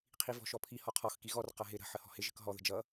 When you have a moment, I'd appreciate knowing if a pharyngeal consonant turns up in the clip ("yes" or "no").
yes